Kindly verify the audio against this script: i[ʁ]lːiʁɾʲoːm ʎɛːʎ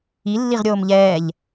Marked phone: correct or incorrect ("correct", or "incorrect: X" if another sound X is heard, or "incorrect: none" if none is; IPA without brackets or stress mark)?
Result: incorrect: none